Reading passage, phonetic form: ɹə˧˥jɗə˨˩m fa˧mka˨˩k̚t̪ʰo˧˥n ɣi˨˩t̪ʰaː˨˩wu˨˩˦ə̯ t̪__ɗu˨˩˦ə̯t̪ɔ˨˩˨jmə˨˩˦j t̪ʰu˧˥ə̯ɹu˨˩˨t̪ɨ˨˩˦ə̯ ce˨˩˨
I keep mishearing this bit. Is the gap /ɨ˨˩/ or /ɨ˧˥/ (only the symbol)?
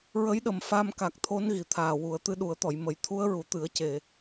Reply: ɨ˧˥